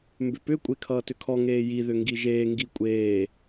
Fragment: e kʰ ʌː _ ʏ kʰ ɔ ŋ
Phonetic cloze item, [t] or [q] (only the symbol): t